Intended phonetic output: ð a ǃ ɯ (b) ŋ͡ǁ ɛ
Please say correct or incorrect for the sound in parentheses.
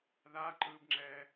correct